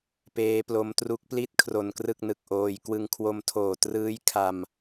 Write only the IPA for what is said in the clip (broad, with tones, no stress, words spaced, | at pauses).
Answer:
peː˦˥plo˦˥m tru˦˥k̚pli˥˩t̚ kʰro˧nkrɯ˥˩k̚nɯ˨˩k̚ʔoː˧j kwɯ˧ŋkʰwo˧mtʰoː˨˩ trɯː˦˥jkʰa˧m